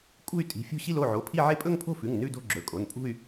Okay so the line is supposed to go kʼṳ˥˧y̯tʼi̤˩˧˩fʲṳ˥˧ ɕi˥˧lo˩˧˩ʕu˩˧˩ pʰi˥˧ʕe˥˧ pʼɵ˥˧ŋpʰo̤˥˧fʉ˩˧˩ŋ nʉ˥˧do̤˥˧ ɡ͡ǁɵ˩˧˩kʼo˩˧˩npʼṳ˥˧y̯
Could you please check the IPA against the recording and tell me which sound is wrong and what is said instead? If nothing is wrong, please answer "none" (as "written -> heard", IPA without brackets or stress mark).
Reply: u˩˧˩ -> o˩˧˩